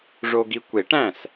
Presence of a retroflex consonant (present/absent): present